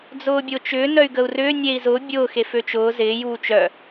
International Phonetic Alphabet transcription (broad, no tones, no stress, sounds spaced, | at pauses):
d͡z ʊː bʲ ʊː t͡ʃ ʏː n œ y̯ ɡ ə u̯ r ʏː nʲ eː i̯ z ʊː bʲ ʊː x e f ø t͡ʃ ʊː z ɪː j uː t͡ʃ œ